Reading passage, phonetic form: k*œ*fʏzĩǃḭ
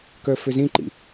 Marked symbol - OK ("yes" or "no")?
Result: yes